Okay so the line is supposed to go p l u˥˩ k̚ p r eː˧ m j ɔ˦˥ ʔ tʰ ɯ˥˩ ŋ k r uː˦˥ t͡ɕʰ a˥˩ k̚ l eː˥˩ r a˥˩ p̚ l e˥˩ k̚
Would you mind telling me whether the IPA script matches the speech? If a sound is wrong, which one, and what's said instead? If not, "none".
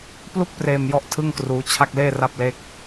none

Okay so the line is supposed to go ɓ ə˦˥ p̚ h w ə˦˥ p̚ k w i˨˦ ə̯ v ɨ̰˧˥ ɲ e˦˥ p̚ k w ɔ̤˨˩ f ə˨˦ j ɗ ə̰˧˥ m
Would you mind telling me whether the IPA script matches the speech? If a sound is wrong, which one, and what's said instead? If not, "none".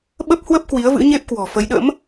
none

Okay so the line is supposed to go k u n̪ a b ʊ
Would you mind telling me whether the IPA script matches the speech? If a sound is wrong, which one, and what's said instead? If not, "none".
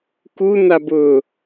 none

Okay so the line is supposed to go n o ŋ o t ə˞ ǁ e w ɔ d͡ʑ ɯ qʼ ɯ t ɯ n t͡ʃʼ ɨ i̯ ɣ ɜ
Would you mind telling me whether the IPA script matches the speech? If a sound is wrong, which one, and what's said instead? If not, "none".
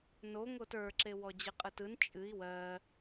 ɣ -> w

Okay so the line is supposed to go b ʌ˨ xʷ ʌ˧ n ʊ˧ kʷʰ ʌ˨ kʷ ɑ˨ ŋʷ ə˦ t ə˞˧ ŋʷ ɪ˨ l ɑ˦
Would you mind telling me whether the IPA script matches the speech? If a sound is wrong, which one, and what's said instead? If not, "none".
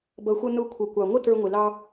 none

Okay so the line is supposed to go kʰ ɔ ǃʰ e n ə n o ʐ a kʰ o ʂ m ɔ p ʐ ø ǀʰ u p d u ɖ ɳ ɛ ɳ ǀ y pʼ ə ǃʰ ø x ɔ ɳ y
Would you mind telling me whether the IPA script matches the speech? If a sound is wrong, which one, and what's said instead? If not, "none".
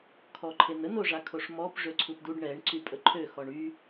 none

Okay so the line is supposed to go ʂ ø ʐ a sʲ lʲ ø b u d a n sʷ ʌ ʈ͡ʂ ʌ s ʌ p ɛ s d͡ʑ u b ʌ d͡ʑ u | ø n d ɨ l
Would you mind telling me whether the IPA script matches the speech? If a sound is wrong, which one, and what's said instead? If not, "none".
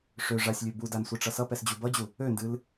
none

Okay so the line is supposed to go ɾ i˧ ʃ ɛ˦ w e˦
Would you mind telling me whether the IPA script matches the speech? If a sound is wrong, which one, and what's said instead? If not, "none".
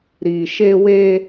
ɛ˦ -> e˦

